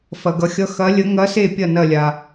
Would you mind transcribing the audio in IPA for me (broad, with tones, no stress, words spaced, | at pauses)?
fɐ˩ɡʌ˩xʲʌ˨˦ xɐ˨˦lʲə˨˦ ŋɐ˨˦se˧˩ pʲɐ˥˩nɐ˧˩lʲa˩